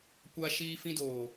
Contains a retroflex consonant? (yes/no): no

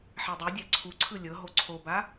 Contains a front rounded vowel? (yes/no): no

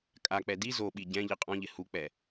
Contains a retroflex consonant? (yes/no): no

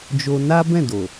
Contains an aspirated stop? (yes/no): no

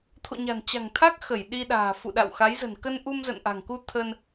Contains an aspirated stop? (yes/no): yes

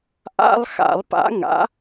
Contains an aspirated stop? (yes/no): no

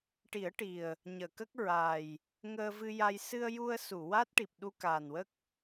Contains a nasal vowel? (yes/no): no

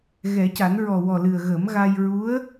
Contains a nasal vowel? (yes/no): no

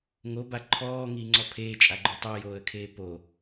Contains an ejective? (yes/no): yes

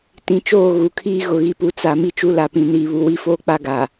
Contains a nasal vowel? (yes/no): yes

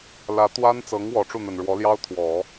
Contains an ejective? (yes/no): no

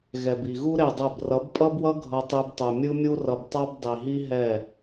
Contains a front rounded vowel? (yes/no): no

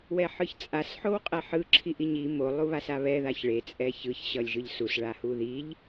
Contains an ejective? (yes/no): yes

